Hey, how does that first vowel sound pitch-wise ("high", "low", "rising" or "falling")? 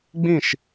falling